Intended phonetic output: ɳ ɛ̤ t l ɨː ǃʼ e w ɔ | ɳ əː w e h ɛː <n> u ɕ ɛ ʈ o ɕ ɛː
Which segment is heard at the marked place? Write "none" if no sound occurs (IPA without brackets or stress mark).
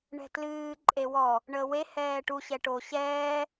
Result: ʈ